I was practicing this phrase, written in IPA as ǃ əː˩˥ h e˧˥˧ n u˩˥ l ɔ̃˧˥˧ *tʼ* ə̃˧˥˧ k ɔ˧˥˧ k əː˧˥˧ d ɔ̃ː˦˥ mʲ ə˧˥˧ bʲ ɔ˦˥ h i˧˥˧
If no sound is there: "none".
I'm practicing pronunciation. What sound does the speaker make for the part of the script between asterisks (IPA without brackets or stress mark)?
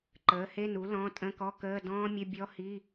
tʼ